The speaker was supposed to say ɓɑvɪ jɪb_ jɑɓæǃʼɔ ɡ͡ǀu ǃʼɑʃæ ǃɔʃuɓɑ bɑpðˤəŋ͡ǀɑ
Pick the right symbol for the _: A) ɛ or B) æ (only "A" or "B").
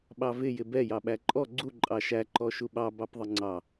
A